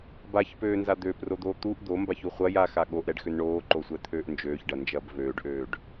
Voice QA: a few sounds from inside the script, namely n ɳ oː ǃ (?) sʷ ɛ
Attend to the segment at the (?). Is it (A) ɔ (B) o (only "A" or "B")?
B